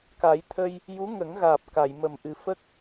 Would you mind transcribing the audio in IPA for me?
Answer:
k a˨˩˦ j t̪ʰ ə˧ j | j u˧˥ ŋ ə˨˩˦ ŋ ɣ aː˨˩ p̚ k a˨˩˨ j m ə˨˩ m ʔ ɨ˨˩ f ə˦˥ k̚

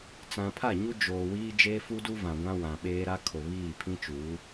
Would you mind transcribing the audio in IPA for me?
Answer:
t͡s ã˨ pʰ a˦˨ ɲ u˦ d͡ʒ oː˨ w iː˦ d͡ʒ eː˦ f u˦ d u˦ v ã˨ ɡʷ ã˦ w ã˨ ɓ eː˦ ɾ a˦ kʰ o˨ β iː˦˨ pʰ ĩ˦ t͡ʃ uː˨˦

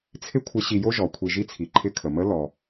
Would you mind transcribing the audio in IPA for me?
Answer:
t͡sʰ ɪ˥ kʷʰ ɪ˧˥ ɕ i˧ j o˥ ʒ ɔ˩˧ kʷʰ i˧ ʒ i˥ t͡sʰ i˩˧ ǃʰ ɪ˧ kʰ ə˩ m ə˧˥ l ɔ˩

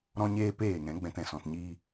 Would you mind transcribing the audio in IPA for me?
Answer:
ɾ ɔ̃˧ ɲ eː˧ p eː˦˨ ŋ ɛ̃˨˦ ɡ͡b ɛ̃˧ t ɛ̃˨ s ɔ̃˧ t ɲ iː˦

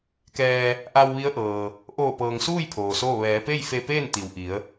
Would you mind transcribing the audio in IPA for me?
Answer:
k ɛː˧ | ʔ a˧ w ʋ i˧˥ ə̯ ʔ ɤː˩ | ʔ oː˧˩ p ɤː˩ ŋ s uː˥˨ j pʰ oː˩ s oː˥˨ ʋ ɛː˩˧ p e˥˨ j f e˧ p eː˥˨ n t̪ i˩ w ʔ i˩˧ ə̯

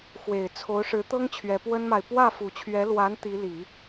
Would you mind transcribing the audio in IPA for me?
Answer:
x w e˨˩ ɪ̯ t͡sʰ o˧˥ ʊ̯ ʂ ɻ̩˧˥ t̪ ɤ˥ ŋ t͡ɕʰ ɥ ɛ˧˥ p w ə˥ n m a˨ ɪ̯ p w ä˥˩ f u˨˩ t͡ɕʰ ɥ ɛ˧˥ l w a˧˥ n t̪ i˧˥ l i˨˩˦

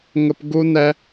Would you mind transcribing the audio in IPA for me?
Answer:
ŋ ə˧ p ɡ u˦ n ɛ˦

